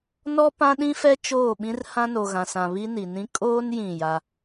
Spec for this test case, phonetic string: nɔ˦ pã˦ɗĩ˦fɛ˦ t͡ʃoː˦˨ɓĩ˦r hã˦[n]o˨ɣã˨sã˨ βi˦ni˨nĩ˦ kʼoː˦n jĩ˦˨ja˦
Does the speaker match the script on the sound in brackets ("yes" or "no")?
yes